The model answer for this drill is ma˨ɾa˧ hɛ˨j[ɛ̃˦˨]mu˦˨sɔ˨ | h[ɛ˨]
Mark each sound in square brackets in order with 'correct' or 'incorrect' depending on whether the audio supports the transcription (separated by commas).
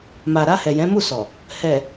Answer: incorrect, correct